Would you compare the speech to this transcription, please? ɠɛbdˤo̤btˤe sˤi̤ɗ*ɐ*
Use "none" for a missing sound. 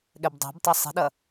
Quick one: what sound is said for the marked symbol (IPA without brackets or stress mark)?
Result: ɐ